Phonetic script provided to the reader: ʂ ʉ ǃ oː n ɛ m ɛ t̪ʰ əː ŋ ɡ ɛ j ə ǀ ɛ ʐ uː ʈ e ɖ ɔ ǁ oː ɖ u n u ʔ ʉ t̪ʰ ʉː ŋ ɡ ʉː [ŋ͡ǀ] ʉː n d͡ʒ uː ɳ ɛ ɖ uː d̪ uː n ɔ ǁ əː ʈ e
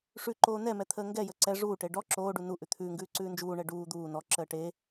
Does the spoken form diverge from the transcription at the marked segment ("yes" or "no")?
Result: yes